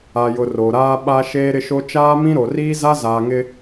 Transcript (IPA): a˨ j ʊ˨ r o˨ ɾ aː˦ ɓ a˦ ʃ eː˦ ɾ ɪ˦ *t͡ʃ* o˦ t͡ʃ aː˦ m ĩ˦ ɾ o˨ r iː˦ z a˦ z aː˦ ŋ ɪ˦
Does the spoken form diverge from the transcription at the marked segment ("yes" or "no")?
yes